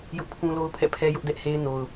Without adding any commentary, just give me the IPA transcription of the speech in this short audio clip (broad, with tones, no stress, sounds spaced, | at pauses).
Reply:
j ʊ˦ ʔ pʰ ũ˦ l o˦ ʊ̯ pʰ ɛ̰˦˨ pʰ ɛ˦ j ʊ˦ ʔ d ɛ˦ ʔ h e˦ ɪ̯ n o˨ ʊ̯